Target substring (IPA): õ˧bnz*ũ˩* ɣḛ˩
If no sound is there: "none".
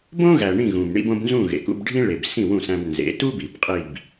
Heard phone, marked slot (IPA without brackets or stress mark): ũ˥˩